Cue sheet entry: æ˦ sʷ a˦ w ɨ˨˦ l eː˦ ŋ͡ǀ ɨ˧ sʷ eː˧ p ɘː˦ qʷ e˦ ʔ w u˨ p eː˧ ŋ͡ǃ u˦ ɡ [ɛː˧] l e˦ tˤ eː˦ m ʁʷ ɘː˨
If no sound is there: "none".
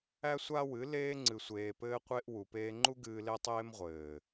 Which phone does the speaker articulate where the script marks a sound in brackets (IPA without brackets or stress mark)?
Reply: ɨː˧